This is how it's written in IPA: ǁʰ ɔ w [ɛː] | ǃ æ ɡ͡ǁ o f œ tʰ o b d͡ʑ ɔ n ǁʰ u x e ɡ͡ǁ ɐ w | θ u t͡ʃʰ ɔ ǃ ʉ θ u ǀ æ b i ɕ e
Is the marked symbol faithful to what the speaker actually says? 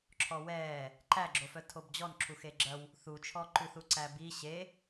yes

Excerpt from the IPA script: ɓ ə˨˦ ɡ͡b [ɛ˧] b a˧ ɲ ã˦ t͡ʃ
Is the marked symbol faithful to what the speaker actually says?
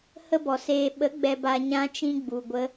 yes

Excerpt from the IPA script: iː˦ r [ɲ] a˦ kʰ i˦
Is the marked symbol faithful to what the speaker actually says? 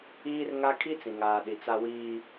no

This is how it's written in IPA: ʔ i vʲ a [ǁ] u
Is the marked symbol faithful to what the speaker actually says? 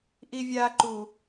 no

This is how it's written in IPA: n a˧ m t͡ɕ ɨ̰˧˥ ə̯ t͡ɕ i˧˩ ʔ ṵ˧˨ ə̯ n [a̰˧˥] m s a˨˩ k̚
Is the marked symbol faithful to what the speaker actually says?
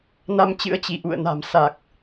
no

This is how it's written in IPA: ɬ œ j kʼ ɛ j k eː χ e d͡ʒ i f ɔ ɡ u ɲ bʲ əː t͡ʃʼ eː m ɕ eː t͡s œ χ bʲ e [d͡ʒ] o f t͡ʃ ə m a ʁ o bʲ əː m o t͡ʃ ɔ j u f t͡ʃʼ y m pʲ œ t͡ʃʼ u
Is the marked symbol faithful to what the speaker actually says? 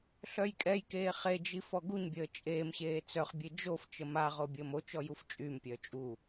yes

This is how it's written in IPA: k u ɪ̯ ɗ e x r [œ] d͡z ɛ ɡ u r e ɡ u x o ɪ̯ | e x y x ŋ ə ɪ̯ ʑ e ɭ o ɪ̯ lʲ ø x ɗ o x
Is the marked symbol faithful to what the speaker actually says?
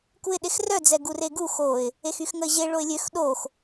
yes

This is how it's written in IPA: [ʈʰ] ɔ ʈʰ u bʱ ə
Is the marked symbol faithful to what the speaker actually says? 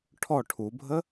yes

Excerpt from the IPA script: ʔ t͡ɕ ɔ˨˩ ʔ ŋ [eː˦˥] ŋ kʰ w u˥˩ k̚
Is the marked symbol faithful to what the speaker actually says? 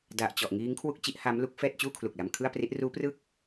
no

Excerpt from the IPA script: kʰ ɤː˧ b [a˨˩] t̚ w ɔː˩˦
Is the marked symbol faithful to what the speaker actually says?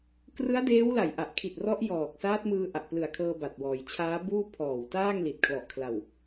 yes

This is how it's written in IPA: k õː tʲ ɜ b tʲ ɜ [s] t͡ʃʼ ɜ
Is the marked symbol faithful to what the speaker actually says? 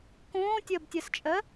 yes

